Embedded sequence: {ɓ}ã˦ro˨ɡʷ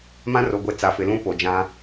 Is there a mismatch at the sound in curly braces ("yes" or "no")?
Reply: yes